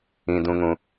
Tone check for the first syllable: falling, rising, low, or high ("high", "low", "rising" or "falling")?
high